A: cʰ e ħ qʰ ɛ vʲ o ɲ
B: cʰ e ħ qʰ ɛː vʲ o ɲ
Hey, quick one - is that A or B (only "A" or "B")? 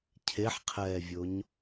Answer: B